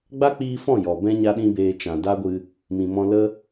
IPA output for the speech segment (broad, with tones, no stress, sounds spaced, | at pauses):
ɡ͡b a˦ k͡p iː˧ f ɔ̃˦˨ j ɔ˨ b ɛ̃˦ ɲ a˦ ɗ ĩ˦ b eː˧ t͡ʃ ã˨ d a˦ ɡʷ ɨ˧ | m ĩ˨ m ɔ̃˧ l ə˦